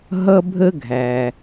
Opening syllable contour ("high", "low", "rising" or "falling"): high